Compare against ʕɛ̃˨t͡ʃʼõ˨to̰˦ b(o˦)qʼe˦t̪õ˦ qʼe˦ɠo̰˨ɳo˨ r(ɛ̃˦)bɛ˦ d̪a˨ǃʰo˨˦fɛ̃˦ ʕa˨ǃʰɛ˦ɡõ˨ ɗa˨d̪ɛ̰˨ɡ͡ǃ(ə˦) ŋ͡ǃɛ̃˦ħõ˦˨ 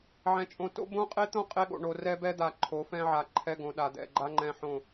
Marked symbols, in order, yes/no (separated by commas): no, no, no